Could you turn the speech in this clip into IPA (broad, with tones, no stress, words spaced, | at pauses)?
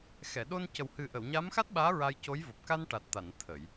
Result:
xɛ˨˩˨ɗo˧n cə˨˩whɨ˨˩ʔə˨˩˨w ɲa˧˥mxa˦˥t̚ɓaː˧˥ ɹa˧jco˧˥j vo˨˩p̚ka˧n ʈa˨˩t̚t̪a˨˩˨n t̪ʰə˨˩˨j